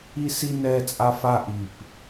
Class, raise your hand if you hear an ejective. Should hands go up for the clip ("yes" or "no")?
yes